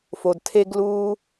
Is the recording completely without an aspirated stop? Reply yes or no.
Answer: no